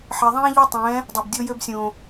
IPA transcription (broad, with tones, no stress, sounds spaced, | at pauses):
ħ ɛ˨ ðˤ ɛ̃ː˦ ʎ ø˦ tˤ ɛ̃ː˨˦ | dˤ o˨ b dʲ o˦ j ø˦ b sʲ õː˨